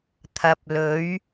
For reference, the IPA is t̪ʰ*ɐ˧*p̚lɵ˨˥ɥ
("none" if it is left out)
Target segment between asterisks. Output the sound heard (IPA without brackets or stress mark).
ɐ˨˥